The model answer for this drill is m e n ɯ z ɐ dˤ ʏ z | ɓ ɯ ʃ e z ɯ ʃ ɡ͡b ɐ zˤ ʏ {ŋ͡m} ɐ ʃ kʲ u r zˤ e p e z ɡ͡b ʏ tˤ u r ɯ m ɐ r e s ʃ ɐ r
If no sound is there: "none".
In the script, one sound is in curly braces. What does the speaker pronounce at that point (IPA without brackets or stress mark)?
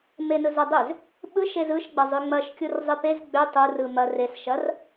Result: ŋ͡m